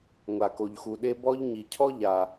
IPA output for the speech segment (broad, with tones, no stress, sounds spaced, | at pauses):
ŋʷ a˩ k o˩ ʎ x u˩ ɗ e˥ b ɔ˥ ʎ ɲ i˩ cʰ ɔ˥ ʎ a˩